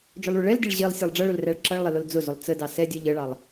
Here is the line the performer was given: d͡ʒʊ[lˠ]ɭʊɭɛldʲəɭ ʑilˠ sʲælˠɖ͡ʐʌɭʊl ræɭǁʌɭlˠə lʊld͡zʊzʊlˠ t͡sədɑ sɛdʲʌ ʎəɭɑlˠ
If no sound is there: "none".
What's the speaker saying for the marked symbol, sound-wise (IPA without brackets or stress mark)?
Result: lˠ